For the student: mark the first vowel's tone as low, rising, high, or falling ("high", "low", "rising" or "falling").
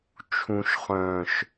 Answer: low